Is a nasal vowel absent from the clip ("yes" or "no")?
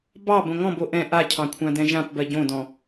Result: no